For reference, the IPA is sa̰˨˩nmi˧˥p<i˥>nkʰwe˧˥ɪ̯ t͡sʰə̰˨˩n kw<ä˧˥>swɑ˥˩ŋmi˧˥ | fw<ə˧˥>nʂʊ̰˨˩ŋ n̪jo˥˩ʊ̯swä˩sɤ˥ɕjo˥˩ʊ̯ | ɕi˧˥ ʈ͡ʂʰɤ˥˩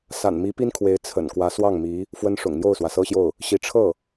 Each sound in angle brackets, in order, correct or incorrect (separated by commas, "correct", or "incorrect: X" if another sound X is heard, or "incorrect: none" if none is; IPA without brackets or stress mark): correct, correct, incorrect: ə˥